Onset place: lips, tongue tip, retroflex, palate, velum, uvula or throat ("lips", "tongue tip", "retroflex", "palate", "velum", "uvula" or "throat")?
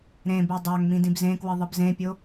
tongue tip